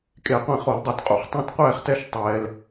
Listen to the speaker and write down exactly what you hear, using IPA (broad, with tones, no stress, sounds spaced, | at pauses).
kʼ e˧˩˧ qʷ ɛ̃˧˩ χ o˧˩˧ l dˤ u˧˩˧ t qʼ ṵ˧˩ χ tˤ ɛ̃˥˧ t qʷ ɛː˥˧ χ t ɛ˥˧ ʃ tˤ ɛː˧ l